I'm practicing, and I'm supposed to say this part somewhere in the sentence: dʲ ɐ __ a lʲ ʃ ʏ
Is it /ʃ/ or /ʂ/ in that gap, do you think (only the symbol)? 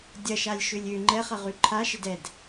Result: ʃ